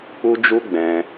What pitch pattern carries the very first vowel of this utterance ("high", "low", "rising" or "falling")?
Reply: high